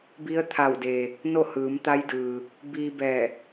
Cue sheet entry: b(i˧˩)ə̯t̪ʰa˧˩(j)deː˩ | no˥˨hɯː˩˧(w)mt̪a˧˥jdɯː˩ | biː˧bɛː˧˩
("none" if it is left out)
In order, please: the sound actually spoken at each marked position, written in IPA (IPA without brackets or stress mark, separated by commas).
i˧˥, w, none